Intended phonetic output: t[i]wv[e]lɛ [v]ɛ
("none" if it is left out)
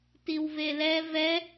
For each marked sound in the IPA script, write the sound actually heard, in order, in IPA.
i, e, v

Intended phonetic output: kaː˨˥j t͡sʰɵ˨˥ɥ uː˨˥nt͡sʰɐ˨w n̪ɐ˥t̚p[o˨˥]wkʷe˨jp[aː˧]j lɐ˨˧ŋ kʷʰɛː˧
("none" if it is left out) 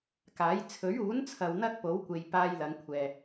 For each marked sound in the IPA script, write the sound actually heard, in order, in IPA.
o˨˥, aː˧

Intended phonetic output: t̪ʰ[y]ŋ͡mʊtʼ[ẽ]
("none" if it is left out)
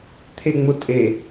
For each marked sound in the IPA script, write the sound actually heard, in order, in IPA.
e, e

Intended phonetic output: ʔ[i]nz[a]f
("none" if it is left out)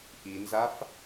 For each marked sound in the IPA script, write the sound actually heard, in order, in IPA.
i, a

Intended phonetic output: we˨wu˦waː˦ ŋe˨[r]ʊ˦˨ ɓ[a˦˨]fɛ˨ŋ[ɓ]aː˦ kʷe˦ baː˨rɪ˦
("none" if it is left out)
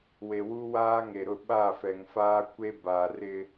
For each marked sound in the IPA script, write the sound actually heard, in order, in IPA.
ɾ, a˦˨, f

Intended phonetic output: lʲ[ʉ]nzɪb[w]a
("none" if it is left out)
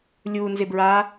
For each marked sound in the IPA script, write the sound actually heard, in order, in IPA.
u, ɹ

